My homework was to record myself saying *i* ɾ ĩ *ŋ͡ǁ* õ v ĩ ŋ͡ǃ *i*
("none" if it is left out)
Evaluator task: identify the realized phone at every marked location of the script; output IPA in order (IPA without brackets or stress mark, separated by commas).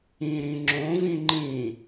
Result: ĩ, ŋ͡ǁ, ĩ